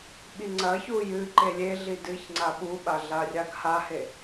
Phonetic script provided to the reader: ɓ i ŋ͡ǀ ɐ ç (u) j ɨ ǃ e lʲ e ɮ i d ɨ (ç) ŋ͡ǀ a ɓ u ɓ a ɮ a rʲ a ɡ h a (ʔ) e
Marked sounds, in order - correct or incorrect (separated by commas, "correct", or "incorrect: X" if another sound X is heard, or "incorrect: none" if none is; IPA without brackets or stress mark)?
correct, correct, incorrect: h